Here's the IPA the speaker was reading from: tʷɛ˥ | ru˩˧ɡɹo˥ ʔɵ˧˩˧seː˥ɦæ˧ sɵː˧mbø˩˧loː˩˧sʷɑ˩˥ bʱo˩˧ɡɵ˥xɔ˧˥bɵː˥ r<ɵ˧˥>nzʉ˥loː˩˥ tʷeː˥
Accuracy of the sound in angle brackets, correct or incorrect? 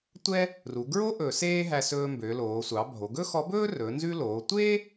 incorrect